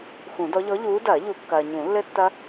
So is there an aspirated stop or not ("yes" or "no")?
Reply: no